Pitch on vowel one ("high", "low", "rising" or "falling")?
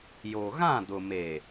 low